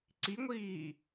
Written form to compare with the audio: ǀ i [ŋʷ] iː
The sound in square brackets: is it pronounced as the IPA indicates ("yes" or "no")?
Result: yes